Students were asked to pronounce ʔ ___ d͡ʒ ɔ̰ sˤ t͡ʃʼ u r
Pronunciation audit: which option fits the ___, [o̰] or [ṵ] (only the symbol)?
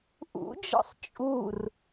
ṵ